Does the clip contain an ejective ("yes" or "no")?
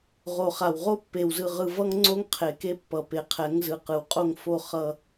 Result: yes